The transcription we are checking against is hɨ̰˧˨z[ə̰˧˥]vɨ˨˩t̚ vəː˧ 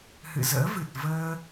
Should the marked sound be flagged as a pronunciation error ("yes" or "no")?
yes